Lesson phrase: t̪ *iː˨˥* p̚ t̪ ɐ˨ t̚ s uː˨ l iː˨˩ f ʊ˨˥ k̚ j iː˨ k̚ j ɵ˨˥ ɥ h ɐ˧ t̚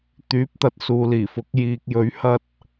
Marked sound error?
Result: yes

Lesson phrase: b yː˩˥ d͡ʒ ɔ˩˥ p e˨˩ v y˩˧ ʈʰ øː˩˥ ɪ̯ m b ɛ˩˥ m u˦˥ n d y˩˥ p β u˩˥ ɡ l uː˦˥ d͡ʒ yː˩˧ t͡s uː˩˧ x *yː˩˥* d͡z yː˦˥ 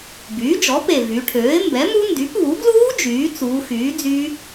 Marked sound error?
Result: no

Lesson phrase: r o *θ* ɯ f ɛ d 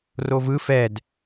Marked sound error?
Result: yes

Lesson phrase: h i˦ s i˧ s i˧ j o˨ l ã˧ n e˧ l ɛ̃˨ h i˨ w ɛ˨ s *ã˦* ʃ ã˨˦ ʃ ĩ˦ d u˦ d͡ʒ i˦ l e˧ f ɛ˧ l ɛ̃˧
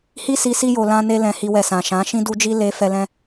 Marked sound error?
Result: yes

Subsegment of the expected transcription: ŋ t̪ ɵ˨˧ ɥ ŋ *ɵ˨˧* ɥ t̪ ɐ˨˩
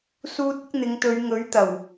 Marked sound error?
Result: yes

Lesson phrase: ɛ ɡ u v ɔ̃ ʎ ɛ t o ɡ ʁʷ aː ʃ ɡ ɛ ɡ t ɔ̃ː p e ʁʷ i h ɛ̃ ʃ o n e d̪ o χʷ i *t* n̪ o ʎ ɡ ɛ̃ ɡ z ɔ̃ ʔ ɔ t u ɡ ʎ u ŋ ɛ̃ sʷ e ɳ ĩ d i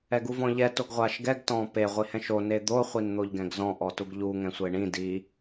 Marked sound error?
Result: yes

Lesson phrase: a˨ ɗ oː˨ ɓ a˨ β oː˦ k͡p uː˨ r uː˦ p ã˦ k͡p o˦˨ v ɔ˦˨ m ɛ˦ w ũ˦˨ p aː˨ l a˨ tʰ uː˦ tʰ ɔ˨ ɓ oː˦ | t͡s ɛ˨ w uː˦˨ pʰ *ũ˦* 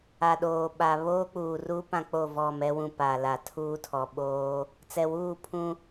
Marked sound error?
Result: no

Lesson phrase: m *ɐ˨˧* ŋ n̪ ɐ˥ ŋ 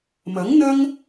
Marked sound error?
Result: yes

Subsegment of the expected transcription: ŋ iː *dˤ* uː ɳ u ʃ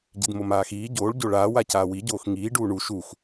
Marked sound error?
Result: yes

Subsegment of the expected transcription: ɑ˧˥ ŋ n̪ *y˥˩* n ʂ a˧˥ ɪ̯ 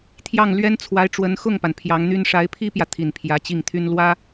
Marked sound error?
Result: yes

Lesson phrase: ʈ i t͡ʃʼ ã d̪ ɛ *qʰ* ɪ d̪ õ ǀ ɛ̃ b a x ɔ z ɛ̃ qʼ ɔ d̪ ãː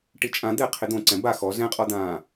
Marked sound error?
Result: no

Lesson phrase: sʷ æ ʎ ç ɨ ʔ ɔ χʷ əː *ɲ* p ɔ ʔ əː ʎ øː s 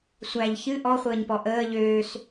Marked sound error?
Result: no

